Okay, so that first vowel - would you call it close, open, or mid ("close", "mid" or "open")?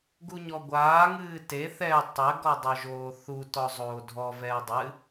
close